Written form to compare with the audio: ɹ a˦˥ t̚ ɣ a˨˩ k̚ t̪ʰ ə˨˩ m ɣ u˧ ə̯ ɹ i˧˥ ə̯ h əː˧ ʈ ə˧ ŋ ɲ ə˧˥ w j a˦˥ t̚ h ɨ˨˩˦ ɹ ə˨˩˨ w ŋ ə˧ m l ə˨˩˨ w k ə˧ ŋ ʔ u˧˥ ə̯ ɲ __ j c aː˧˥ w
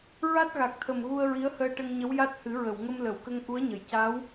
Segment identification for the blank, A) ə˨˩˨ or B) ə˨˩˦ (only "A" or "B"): A